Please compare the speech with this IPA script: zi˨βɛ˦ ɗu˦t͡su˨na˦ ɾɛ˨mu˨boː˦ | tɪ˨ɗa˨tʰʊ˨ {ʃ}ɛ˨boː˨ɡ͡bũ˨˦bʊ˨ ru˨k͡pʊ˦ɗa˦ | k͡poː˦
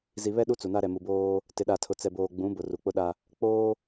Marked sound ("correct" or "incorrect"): incorrect